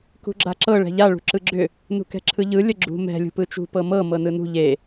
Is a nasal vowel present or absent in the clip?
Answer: absent